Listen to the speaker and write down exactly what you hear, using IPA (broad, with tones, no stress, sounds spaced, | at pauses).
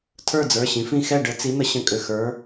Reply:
tʰ ə˞˥˨ d͡z ə˞˩˧˩ ɕ ĩ˩˧ f ĩ˥˨ x ɛ˥˨ ɖ ə˨˥ t͡s i˨˥ n̪ ə˨˥ ɕ ə̃˨˥ kʼ ʏ˩˧˩ x ə˞˨˥